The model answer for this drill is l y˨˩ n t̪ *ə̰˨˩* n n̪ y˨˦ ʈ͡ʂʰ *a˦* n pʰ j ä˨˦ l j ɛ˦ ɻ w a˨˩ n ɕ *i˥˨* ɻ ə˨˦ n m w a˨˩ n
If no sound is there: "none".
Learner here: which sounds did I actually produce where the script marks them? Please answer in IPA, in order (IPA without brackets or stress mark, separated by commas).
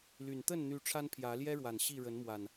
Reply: ə˥˨, a˦, i˥˨